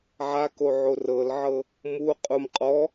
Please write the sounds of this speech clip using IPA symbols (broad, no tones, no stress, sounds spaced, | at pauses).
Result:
ʕ a k o ʕ o r ɤ l ʕ ɤ | m u qʼ u m qʼ ɔ